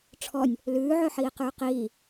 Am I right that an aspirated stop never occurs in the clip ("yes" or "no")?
no